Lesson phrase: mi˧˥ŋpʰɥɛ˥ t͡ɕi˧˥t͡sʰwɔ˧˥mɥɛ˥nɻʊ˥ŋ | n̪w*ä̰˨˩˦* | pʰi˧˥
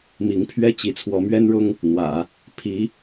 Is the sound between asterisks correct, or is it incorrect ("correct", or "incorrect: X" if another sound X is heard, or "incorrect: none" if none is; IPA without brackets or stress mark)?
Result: correct